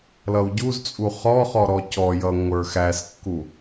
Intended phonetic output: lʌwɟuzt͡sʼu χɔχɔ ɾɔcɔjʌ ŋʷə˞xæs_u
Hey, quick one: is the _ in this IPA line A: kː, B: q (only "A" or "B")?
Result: A